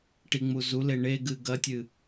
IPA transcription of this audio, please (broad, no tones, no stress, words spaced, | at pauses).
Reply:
ʈiŋ͡muzule ɳeɡɨ ɡɐtʲɨ